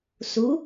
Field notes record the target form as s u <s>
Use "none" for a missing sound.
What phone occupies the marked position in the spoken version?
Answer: none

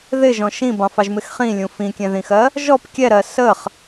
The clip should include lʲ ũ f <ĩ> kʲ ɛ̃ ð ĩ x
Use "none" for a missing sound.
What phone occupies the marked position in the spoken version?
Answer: ĩ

